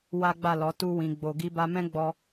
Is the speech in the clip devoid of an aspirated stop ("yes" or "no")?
yes